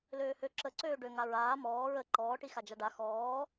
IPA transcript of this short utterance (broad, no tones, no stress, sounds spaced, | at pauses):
l øː h ø ǁ ə ǀ øː ɖ ø ŋ a ɹ aː m ɔː ɹ ə ǃ ɔː ʈ i x a d͡ʒ a ɖ a x ɔː